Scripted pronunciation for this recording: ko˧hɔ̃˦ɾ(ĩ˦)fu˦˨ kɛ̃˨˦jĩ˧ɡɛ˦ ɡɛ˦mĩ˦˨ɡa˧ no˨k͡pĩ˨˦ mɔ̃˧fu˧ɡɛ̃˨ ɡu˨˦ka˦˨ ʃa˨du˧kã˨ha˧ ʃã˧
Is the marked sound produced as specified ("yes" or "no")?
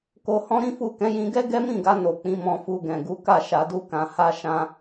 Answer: yes